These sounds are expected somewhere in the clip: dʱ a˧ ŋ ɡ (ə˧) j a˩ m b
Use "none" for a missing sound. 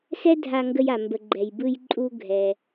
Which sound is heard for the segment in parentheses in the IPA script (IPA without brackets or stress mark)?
ə˧